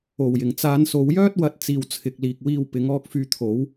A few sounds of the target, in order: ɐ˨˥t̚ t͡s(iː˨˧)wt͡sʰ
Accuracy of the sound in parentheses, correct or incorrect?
incorrect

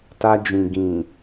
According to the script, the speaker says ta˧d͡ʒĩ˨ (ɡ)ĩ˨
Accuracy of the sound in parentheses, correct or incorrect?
correct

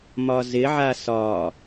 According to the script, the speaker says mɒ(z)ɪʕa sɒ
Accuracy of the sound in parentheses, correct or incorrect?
correct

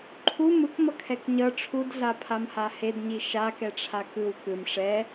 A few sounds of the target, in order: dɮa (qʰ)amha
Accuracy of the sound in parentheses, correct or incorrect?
incorrect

